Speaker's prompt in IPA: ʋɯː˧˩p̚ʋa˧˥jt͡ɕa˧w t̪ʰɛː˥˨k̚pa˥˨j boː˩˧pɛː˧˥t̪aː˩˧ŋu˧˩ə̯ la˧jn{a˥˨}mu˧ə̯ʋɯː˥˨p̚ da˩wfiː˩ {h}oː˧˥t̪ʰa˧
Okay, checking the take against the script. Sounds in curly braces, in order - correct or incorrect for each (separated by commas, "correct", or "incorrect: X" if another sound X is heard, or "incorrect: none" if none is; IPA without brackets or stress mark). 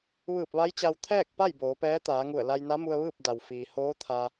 incorrect: a˧˥, correct